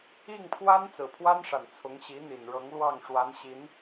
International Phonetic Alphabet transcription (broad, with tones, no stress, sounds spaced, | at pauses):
i˥˩ ŋ pʰ w a˥ n t͡s ɹ̩˨˩ pʰ w a˥ n ʂ a˨˩ n t͡sʰ ʊ˧˥ ŋ ɕ i˧˥ n̪ i˨˩ n ɻ ɤ˧˥ ŋ l w ɑ˥˩ ŋ ʂ w a˧˥ n ɕ i˧˥ n